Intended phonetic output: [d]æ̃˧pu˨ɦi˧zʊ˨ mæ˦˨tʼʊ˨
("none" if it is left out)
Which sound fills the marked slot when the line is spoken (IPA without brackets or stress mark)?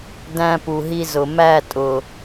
d